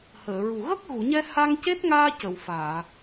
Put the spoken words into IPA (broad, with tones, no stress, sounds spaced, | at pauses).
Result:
h əː˨˩˨ ɹ u˨˩ ɣ ə˦˥ k̚ ɣ u˨˩˨ ɲ ɛ˧ h a˧ ŋ c e˦˥ t̚ ŋ aː˧ c ə˨˩˨ w f aː˨˩˨